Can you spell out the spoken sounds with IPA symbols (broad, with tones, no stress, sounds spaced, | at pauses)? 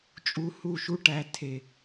t͡ʃʼ u˧ h u˦˨ ʃ u˦ ʈ æ˧ tʰ e˨